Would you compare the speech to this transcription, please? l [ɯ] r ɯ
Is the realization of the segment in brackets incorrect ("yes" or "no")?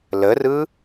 yes